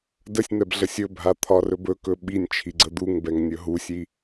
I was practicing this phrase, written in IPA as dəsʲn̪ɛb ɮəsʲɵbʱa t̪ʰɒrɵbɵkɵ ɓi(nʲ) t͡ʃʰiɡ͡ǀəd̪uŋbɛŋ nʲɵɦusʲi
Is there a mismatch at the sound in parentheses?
no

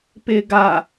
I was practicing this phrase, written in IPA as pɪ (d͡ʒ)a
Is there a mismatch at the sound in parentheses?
yes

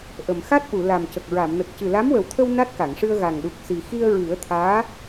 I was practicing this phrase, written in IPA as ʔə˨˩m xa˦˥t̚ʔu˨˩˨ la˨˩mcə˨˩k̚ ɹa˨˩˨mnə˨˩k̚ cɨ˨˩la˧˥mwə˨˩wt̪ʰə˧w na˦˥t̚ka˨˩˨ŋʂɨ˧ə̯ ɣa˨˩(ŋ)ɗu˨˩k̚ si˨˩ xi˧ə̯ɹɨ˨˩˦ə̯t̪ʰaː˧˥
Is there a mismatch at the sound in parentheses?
no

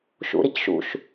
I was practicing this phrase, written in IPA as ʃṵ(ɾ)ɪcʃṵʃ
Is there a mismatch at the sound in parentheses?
no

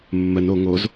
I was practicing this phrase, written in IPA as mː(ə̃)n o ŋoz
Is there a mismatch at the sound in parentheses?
yes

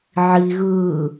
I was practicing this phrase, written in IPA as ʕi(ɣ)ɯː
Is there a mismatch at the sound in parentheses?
no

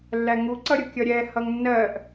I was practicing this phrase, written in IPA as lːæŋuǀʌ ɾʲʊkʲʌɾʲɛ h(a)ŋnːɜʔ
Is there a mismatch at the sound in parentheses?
yes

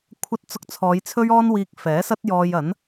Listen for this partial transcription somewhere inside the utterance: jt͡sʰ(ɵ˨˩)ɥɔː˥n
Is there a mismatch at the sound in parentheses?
yes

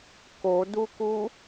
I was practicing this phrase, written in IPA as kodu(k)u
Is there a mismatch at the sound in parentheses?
no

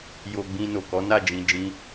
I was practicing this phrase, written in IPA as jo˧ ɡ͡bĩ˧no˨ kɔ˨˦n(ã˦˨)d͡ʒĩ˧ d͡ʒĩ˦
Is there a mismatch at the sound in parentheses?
yes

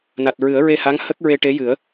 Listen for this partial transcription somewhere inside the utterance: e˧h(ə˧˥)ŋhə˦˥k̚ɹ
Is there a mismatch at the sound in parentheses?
yes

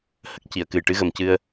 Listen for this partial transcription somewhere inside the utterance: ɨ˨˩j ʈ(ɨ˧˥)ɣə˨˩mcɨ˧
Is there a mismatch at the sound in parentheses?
no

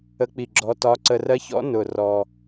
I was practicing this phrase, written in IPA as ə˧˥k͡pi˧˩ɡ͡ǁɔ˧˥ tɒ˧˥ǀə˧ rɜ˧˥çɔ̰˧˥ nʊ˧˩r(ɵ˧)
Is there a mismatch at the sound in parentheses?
yes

